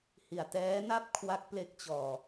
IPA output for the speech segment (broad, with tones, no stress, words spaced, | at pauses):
hi˨˩a̯tɛː˦˥na˥˩p̚ kʰwa˦˥k̚ple˦˥k̚t͡ɕɔː˧